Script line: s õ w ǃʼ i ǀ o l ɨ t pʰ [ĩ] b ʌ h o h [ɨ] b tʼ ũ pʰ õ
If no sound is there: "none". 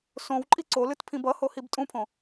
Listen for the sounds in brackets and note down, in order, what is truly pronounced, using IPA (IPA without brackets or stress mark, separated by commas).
ĩ, i